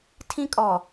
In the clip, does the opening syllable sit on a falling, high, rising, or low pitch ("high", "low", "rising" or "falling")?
high